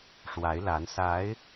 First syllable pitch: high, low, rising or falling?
rising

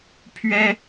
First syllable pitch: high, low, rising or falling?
high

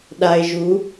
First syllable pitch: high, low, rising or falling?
low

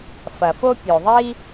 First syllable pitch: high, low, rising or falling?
low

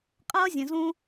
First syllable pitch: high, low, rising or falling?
high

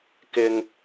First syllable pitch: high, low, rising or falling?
high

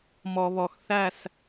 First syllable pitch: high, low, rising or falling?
low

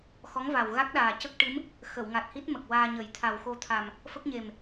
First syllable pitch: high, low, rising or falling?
rising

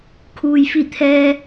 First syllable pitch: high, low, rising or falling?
low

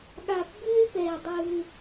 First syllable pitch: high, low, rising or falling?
low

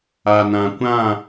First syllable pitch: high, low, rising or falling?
low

